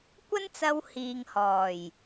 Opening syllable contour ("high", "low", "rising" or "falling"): high